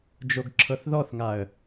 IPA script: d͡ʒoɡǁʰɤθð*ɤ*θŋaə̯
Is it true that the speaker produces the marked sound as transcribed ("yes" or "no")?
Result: no